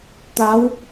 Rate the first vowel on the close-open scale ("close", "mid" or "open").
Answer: open